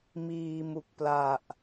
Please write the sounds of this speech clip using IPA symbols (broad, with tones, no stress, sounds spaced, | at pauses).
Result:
m iː˧ m u˨˩ k̚ p l a˨˩ ʔ